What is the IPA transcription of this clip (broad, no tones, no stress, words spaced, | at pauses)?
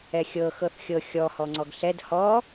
ɛxʲɤ xɤθxʲɤ xʲɔ hɔŋ͡ǀɔɡɬɛd hɔ